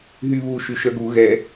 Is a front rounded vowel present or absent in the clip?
present